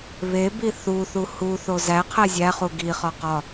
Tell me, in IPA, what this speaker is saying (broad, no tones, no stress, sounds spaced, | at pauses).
β e b i θ u θ u h u θ o z æ qʰ æ zʲ æ χ u ɡ i χ ɒ q ɒ